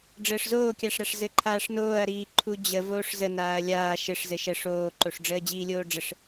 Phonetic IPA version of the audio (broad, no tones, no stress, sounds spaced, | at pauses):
ɖ͡ʐ əː ʂ z oː kʲ a ʂ ɾ a ʂ z ɘ ǃʰ aː ʂ n oː ɐ̯ ɾ iː ǃʰ u d͡ʑ ə v oː ʂ z ə n aː ɐ̯ lʲ aː ʃ ɘ ʂ z ɘ ʃ ə ʂ oː ǃ o ʂ ɖ͡ʐ əː d͡ʑ iː lʲ oː ɖ͡ʐ ə ʂ